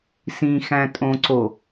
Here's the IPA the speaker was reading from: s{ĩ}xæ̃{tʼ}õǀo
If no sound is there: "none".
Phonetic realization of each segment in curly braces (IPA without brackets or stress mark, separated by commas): ĩ, tʼ